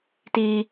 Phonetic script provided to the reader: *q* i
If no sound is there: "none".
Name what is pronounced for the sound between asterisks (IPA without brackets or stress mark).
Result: t